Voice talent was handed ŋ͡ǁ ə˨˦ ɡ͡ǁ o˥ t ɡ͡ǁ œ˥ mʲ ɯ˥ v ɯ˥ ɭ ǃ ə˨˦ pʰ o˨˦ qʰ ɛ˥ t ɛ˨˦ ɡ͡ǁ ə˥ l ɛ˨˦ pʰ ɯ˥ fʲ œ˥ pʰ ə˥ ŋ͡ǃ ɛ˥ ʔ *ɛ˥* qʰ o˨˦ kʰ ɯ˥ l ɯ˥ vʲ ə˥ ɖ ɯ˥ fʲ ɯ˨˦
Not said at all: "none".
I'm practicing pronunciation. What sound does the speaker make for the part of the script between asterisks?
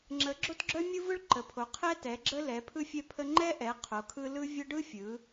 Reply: ɛ˨˦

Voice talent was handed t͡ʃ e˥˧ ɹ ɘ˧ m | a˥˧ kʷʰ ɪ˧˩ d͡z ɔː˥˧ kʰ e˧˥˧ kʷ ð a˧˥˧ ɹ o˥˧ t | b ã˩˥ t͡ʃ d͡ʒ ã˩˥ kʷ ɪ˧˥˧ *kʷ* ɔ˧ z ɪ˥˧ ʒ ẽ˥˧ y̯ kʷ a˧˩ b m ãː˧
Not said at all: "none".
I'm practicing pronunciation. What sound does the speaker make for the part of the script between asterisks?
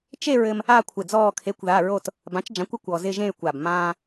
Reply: kʷ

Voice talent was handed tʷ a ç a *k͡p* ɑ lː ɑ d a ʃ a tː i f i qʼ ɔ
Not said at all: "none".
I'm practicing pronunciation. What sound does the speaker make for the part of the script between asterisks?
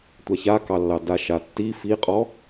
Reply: k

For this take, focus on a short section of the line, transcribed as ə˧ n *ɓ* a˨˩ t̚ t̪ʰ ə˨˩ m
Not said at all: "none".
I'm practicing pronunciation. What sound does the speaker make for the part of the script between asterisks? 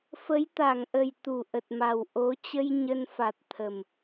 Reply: f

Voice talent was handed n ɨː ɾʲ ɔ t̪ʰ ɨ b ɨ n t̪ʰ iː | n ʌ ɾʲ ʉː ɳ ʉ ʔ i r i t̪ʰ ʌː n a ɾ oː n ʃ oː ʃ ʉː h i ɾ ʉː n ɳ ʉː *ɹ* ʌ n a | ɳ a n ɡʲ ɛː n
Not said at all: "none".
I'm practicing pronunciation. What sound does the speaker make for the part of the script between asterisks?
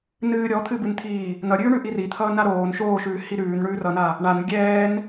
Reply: r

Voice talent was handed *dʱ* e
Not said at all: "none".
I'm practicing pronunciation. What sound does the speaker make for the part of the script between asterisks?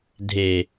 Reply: dʱ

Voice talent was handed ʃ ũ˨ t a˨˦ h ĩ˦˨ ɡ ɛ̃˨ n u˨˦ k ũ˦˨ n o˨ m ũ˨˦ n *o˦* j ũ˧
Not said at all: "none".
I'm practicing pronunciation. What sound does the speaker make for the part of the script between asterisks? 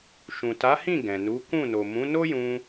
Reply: o˦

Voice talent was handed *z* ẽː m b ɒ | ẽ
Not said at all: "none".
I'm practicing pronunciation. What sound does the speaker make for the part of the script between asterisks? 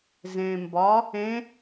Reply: z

